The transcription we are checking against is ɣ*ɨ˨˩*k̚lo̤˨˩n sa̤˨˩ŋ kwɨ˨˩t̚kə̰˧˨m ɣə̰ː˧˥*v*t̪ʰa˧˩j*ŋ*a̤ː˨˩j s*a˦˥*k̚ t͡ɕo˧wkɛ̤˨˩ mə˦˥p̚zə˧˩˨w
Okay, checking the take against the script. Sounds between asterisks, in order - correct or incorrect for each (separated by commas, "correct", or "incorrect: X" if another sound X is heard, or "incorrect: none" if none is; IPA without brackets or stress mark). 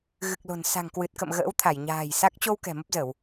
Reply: correct, incorrect: w, incorrect: ɲ, correct